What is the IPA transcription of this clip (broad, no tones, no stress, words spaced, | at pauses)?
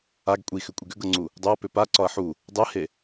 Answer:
aɡ kʷʼixʏkʷʼiɡ ʏɡɤŋ͡ǀu | dˤʏɐ̯pʏ paǀɒɐ̯ ħu | dˤɛhe